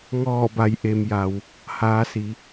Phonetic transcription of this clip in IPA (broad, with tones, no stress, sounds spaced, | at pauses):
ŋ ɔː˧˩ b a˩˧ j ʔ e˩ m j a˩ w | h aː˩˧ s i˩˧